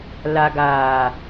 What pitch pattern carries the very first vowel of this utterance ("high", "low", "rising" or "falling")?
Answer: low